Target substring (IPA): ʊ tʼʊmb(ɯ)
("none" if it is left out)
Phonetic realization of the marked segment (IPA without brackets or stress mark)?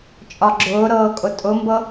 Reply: ɤ